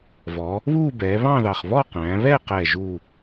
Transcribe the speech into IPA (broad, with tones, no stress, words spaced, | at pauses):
vɔ˩˧ | βuː˥˧bɛː˩˧βɑ̃˥˧ðɑ˨˩χ βɔ˥˧ qæ̃ː˩˧βɛ˥˧qɛː˨˩ ʒu˨˩